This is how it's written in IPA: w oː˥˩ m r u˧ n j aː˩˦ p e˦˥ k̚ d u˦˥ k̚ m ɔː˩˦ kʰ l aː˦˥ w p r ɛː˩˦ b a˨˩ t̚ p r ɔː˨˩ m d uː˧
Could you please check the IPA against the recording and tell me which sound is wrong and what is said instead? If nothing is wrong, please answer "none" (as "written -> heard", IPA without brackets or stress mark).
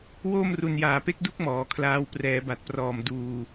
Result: none